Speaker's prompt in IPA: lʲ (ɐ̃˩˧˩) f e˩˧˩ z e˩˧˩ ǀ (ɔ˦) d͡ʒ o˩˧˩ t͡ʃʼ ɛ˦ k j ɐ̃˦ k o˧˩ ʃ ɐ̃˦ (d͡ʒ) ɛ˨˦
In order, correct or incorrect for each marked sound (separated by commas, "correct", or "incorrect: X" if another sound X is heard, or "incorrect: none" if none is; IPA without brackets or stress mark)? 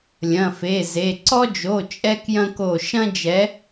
correct, correct, correct